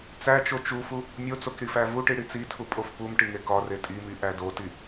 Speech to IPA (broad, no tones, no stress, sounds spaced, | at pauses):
t͡s æ t͡ʃ o t͡ʃ u f u | mʲ o t͡s o k ɾ i f æ v u ʈ i ɽ i t͡s i tʰ u pʼ o f p u m ʈ i ŋ e k ɒ r e tʼ i m i ʔ æ d o t i